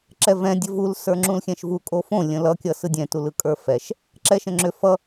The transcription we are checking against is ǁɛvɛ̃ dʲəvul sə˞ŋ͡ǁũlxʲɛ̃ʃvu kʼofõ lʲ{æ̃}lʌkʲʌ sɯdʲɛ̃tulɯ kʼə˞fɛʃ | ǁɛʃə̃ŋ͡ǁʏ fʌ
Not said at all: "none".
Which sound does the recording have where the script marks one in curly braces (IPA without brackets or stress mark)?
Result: ə̃